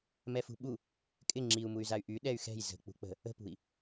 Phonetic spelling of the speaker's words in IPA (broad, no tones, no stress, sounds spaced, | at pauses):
m ɛ f ṳ ɓ u | kʼ ɪ ŋ͡ǁ i u̯ m u y̯ z a y̯ ʔ y ɗ ɛ y̯ x ɛ̤ j z ə̤ k͡p ṳ k͡p ə̤ | ə̤ p ṳ i̯